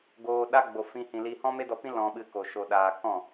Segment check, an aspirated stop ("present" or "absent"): absent